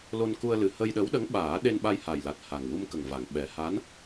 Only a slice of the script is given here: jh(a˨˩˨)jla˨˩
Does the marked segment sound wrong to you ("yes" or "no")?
yes